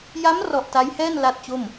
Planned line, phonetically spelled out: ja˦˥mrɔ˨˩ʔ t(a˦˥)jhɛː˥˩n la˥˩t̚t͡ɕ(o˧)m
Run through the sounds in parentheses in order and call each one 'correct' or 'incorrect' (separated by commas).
correct, incorrect